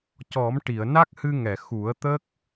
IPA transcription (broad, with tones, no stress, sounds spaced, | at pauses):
c ɔ˨˩˦ m ʈ i˨˩˨ ə̯ n a˦˥ k̚ h ɨ˧ ŋ ɛ˨˩˨ x u˨˩˦ ə̯ t̪ ə˦˥ k̚